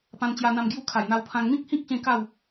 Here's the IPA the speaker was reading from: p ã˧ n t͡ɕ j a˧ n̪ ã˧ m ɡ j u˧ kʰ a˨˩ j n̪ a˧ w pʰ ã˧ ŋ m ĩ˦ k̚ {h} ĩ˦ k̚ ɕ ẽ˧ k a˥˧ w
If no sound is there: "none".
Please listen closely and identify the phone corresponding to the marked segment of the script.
h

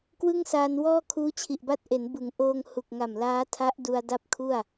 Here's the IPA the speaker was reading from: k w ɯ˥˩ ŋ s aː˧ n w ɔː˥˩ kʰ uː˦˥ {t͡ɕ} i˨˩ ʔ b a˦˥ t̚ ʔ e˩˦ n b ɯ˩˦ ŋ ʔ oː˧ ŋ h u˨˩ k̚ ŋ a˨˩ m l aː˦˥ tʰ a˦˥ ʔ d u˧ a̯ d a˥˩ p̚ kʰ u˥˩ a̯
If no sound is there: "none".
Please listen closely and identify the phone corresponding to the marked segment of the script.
t͡ɕʰ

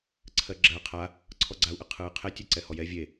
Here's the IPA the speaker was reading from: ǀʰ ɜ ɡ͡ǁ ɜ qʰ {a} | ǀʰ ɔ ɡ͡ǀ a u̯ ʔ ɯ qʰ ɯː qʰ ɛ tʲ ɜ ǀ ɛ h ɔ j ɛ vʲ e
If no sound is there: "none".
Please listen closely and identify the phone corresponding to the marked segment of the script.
a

